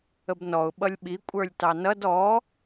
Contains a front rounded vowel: no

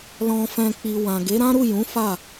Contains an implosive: no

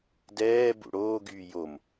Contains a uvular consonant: no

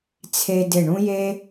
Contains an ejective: no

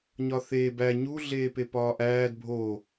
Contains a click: no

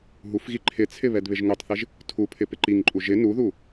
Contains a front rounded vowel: no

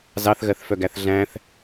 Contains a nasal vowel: yes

